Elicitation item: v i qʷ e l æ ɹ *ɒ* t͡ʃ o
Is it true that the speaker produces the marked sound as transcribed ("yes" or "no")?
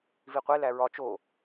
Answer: yes